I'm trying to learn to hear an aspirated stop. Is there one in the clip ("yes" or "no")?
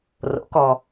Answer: no